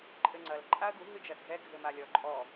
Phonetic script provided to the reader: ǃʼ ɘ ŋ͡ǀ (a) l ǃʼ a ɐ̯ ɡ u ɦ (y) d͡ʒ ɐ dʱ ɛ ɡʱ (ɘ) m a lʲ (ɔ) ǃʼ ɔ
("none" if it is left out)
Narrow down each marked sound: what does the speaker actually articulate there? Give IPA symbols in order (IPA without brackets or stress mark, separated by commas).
ɐ, ɨ, ɘ, ɔ